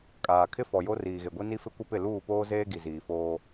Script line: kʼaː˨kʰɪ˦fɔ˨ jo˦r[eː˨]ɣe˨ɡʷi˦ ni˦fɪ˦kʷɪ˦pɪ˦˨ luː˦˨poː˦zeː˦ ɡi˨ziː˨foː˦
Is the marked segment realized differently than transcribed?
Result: yes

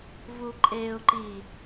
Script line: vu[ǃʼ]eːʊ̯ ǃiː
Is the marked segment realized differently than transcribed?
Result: no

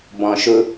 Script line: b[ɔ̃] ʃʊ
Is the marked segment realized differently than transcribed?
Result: no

